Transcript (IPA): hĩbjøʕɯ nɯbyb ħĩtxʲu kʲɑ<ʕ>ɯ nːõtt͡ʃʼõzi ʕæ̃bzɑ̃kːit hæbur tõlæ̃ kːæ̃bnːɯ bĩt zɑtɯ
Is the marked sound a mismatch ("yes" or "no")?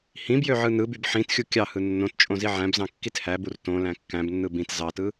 yes